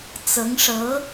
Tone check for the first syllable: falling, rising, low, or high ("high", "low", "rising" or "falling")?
rising